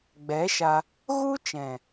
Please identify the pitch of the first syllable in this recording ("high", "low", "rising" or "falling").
rising